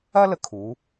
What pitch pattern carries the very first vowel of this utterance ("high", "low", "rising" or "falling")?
high